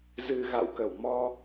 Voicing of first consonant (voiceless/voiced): voiced